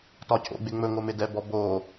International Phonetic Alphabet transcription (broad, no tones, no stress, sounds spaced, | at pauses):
t ɒ cʰ o̰ ɡ͡b ɪ ŋ͡m ɵ ŋ o m ɪ d ɛ b ɔ b o